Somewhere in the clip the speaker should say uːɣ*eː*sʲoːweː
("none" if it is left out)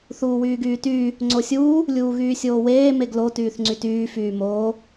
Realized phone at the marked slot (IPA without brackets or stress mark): yː